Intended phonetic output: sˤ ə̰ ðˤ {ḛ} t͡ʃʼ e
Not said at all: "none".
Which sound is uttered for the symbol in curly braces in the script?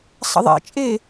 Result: ḛ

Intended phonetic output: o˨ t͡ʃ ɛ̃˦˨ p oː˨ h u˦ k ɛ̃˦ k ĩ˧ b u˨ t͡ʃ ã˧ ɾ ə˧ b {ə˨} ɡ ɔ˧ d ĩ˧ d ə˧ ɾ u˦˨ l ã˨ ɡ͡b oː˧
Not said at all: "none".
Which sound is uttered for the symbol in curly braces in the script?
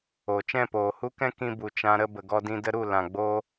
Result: ə˨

